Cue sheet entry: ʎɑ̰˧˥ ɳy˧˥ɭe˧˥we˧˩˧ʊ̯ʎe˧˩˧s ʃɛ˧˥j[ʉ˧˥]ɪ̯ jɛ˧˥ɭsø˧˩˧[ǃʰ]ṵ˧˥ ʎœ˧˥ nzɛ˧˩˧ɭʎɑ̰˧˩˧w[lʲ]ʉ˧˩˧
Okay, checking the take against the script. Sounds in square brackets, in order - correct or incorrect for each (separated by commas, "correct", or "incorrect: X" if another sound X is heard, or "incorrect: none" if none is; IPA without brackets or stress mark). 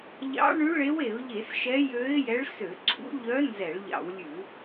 incorrect: ø˧˥, incorrect: ǀʰ, correct